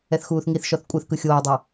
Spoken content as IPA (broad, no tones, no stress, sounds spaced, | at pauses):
ɛ θ x uː θ ŋ i θ ʃ ɔ θ kʷʼ ɯ θ k ɯ xʲ oː dˤ o